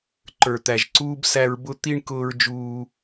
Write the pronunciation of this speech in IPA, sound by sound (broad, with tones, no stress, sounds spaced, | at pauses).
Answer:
ǃ ə˞˨ t̪ æ˨ ʒ ǀ uː˧ b s æ˧ ɹ b ʊ˧ t̪ i˧ ɳ k ʊː˧ ɹ d͡ʒ uː˧